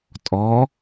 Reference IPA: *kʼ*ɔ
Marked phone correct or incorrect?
incorrect